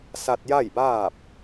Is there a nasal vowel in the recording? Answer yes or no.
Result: no